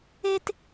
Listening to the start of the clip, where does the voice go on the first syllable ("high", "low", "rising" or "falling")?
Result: high